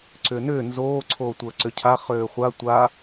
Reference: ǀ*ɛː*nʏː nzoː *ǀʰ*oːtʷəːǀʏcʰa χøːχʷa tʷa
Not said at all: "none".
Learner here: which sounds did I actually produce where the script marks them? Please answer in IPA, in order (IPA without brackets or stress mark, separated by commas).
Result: ʏː, ǀʰ